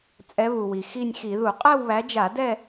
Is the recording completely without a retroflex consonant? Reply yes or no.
yes